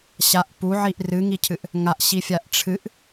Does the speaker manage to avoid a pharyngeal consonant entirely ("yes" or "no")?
no